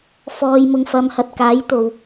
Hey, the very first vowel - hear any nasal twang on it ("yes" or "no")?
no